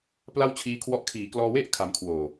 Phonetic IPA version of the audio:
p l a˥˩ w t͡ɕʰ iː˦˥ kʰ w ɔ˦˥ ʔ kʰ iː˩˦ k l ɔː˧ w e˥˩ ʔ kʰ a˧ m kʰ w oː˨˩

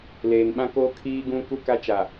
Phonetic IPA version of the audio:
l eː˨ n ɓ ã˦ k oː˦ kʰ iː˦ ɡ ũ˦ k u˦ k a˦ t͡ʃ a˨

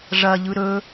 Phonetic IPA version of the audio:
ʐ ɐ ʎ ɯ ɾ ɵ

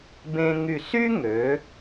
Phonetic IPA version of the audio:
b ẽ˧ ŋ y˧˩ s y˥ ŋ ø˩˧

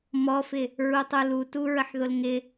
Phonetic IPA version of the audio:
m ɔ f ɪ | ɹ u tˤ u l u t u ɹ ə ħ ð ʊ l ŋ ɪ

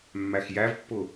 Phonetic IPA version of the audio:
mː æ x j æ v pː ʊ

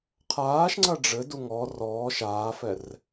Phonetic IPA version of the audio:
qʰ aː ʃ ŋ͡ǀ ɐ ɖ͡ʐ ɘ d u ŋ ɔ r ɔː ʃ aː f ɛ r

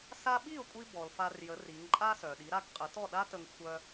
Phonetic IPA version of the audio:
s a˥ ɓ i˥˩ ʊ̯ kʷʼ i˧ b ɔ˩ l f a˧ r j ə˩˥ r i˩˥ ŋ ǃʼ a˥ s œ˩ ɗ i˩˥ ɾ a˥ ɡ qʼ ə˩˥ t ɔ˥˩ ɗ a˥ t ə˧ ŋ xʷ œ˧

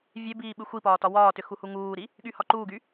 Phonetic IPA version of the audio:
vʲ e b iː ɓ ɨ xʷ i p ɒː t ɒ w ɒː t ʏ x u h u ŋ uː ɾ i | ɠ y h ɒ ǃ uː ɡ y

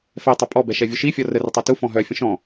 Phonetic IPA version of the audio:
f ɛ tˤ ø pʼ ɔ b ɛ ʃ ɛ vʲ u ʃ i fʲ ɔ r ə r ə tˤ u t u f ɔ̃ ɦ œ fʲ ə̃ ʃ ɔ̃

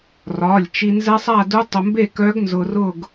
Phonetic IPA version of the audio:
r ɒ˩˧˩ lʲ t͡ʃ i˧ n z ɛ˦˥ sˤ a˥˧ d u˦˥ tˤ ʊ˧ m b e˥˧ k œ˦˥ ɡ n z ʊ˧ r ʊ˥˧ ɡ

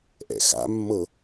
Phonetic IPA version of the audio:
ʔ ɛ̰ x a̰ mː ɤ

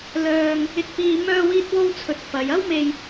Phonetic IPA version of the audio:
l œː˧ ŋ | ɪ˧ k̚ p iː˧ m œː˧ w iː˧ t̚ w o˧ w t͡sʰ ɵ˨ t̚ f ɐ˨˧ j ɐ˥ w m e˧ j

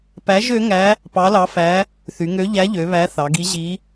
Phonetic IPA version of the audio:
p æ˧˥ ʒ ø˧˥ ŋ æ˧˥ | p ɑ˧˥ l ɑ˧˥ f æ˧˥ | θ y˩˧ ŋ ø˧˥ ʎ æ˧˥ ʎ ø˩˧ β æ˧˥ θ ɑ˩˧ ɡ i˧˥ ʑ i˧˥

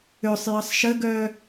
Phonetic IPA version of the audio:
ø sˤ j ɪ sˤ ʃ ə ɡ œ

